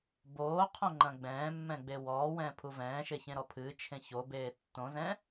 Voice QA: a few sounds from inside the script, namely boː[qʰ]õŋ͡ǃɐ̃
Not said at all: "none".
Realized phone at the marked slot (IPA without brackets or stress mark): qʰ